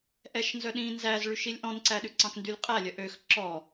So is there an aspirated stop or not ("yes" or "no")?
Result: no